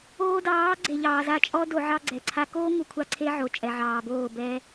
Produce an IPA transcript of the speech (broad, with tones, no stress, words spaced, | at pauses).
oː˧dɑː˨˦ ɡ͡ǀe˨ʎɑː˨za˧ t͡ʃʼɔ˦ do˧ʕɑ˦ɡ͡ǀɛ˨ǀʰa˦ koː˦ŋu˨kʷʰa˧ ǀʰe˦ʕo˨ t͡ʃʼɛ˨ʕɑː˨boː˦˨bɛː˦